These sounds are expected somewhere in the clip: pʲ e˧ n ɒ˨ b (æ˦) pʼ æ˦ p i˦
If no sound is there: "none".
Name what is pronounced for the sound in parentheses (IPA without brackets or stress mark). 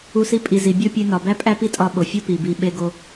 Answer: æ˦